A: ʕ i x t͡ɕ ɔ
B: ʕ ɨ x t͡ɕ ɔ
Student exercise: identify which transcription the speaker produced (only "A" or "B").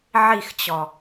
A